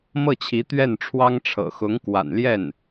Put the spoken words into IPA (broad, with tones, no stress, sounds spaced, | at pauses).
m ɤ˥˩ t͡ɕʰ i˧˥ t̪ ɥ ɛ˥˩ n ʈ͡ʂʰ w ɑ˥ ŋ ʈ͡ʂʰ ɤ̰˨˩ x ʊ˧˥ ŋ k w a̰˨˩ n l j ɛ˥˩ n